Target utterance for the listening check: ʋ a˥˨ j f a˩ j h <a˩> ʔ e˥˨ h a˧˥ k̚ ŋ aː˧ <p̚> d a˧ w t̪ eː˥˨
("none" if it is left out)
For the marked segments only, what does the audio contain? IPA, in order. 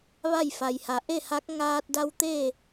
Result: a˩, t̚

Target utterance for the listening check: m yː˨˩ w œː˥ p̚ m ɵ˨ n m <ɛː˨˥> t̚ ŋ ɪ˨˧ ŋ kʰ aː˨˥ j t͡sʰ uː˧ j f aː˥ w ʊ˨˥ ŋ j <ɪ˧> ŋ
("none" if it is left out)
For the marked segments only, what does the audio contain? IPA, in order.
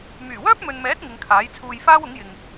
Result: ɛː˨˥, ɪ˨

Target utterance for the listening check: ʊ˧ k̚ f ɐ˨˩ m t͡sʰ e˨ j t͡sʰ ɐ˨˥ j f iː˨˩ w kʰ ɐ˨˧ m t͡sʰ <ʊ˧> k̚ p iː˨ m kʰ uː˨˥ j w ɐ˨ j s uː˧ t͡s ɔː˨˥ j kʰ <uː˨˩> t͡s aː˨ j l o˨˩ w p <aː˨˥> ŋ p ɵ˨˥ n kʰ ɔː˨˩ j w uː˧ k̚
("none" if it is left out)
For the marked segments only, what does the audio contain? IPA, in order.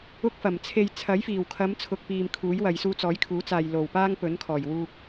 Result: ʊ˨, uː˨˥, aː˥

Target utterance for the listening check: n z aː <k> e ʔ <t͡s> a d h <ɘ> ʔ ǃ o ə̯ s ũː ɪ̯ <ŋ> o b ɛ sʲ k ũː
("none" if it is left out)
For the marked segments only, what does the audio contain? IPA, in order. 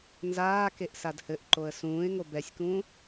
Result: k, s, ɘ, ŋ

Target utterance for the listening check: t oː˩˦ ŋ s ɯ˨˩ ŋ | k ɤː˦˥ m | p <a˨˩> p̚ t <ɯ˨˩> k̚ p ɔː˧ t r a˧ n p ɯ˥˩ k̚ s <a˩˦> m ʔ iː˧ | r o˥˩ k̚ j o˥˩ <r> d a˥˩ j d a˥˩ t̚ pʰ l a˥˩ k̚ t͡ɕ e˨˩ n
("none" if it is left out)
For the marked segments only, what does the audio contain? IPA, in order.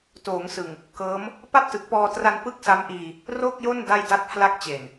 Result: a˥˩, ɯ˨˩, a˦˥, n

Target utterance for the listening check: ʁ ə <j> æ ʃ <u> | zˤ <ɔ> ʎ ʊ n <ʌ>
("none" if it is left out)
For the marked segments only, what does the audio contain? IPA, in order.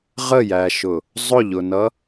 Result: j, ʊ, ʊ, ʌ

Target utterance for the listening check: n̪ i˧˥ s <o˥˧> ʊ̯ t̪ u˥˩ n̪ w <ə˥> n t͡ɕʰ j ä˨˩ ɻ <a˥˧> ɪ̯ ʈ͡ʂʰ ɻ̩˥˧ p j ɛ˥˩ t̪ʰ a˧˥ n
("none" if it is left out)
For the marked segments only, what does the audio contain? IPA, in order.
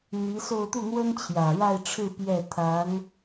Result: o˥˧, ə˥, a˥˧

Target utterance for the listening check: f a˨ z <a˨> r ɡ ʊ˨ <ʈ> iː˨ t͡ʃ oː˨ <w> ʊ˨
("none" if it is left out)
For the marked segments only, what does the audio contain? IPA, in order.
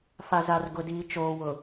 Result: a˨, d, w

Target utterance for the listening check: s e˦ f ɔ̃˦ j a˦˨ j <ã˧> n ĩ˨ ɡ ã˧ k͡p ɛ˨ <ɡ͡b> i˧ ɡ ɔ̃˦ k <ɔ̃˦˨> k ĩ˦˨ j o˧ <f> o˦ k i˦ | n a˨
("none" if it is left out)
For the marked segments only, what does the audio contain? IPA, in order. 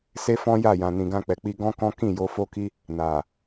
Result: ã˨, k͡p, ɔ̃˦, f

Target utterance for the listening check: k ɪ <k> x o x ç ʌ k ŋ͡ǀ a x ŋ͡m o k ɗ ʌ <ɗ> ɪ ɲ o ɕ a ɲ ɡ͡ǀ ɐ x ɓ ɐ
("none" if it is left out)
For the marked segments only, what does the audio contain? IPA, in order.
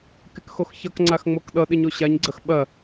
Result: k, ɗ

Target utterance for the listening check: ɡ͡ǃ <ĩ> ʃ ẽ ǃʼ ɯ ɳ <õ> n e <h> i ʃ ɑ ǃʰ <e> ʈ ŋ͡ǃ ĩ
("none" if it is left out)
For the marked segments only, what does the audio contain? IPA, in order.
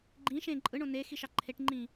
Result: ĩ, õ, x, e

